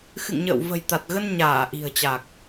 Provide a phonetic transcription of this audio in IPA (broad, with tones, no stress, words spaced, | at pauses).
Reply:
xɨ̰˧˨ŋɲə̰ː˧˨w və̤˨˩jt̪a˨˩t̚ɣə˧n ɲaː˧˩ ʔi̤˨˩ə̯t͡ɕa˨˩k̚